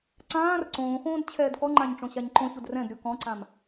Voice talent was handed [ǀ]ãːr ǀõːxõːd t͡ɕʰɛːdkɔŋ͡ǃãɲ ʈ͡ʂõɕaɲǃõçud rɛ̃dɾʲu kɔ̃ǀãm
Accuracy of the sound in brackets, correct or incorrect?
correct